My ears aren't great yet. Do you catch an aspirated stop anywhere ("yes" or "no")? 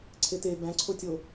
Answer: yes